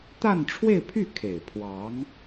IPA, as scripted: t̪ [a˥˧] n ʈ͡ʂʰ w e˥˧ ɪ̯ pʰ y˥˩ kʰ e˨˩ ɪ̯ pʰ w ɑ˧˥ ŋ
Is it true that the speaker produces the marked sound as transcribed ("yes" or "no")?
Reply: yes